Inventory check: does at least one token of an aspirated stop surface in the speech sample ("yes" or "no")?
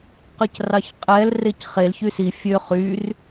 no